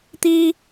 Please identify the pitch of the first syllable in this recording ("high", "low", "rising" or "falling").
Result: high